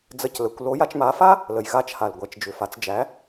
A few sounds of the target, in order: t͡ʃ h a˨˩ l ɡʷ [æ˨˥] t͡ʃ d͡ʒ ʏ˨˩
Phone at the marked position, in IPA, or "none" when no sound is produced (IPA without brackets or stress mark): æ˨˥